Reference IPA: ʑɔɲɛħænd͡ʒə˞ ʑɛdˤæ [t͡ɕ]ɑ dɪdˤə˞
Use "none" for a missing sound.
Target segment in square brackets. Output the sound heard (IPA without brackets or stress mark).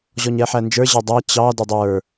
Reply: t͡ɕ